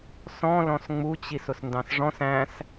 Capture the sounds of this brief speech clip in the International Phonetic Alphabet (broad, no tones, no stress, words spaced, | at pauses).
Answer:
sɔ̃ lɔ̃sŋ͡mut͡ɕis ʊsndɑ̃sʐɔ̃s æ̃s